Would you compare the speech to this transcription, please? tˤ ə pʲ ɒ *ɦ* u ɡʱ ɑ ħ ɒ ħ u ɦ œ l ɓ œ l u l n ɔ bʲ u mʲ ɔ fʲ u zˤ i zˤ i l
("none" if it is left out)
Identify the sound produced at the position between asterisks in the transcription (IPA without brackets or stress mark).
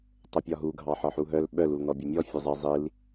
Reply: ɦ